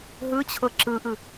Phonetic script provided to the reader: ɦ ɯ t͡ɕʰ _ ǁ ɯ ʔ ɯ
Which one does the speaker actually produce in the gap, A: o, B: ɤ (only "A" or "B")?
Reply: B